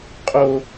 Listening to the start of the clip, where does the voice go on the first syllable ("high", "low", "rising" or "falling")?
high